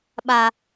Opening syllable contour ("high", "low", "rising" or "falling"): low